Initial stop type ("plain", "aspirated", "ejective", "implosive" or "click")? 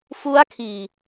aspirated